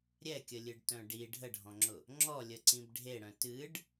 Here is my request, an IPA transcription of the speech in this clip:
ɾʲɛkʲəlʲɨɖtœ̃ ɖi ɖʱəɖʱɔ̃ŋ͡ǁʊ | ŋ͡ǁɔlʲəǀĩb ɖʱeɽœ̃ tɨɖ

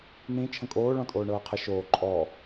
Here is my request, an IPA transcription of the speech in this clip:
n̪ĩ t͡ʃʰə̃kʼoːɭɔ̃ tʼoːɳɤːqʰə ʃoː ǃʼɔ

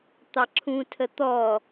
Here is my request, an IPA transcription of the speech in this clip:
t̪ɑǁʰũ tʰət̪ɔ

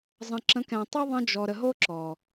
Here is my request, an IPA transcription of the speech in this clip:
zˤə̃˨ ǁə̃˨˦k ɛ̃˨tˤy˦ ðˤə̃˦ d͡ʒɔ˨ɾə˨ɦo˦ ǁɔ˨

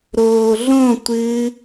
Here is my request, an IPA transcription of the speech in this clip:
ɾoːɮõtʷɨː

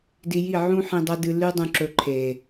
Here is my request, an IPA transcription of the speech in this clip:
di˧ji˦˨ ʕũ˦ ħĩ˧dˤɐ˦ dɨ˦ lʉ˦dˤũ˧ǁɵ˧ ǃʰe˨

